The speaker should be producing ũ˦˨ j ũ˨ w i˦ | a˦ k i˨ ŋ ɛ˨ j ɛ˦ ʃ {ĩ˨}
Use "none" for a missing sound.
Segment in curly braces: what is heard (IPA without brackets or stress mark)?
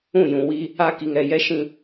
ĩ˦